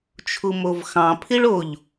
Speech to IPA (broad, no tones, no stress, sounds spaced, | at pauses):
t͡ʃʰ u m o v x ɑ̃ pʰ i ɭ o ʎ